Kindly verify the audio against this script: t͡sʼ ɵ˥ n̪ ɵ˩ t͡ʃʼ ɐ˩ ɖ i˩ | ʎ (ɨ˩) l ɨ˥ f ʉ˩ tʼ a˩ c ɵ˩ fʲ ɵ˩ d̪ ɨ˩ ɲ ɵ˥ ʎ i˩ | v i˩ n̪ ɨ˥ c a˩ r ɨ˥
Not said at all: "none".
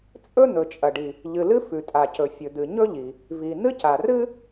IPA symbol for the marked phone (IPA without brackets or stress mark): ɨ˩